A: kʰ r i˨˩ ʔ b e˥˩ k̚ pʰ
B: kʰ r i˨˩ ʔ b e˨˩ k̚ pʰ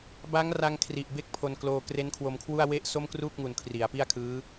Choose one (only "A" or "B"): A